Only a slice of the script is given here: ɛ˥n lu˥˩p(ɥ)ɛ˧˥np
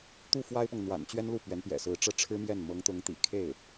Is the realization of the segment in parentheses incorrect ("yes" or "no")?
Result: no